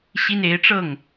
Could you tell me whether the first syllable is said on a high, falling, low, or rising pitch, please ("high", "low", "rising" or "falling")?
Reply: high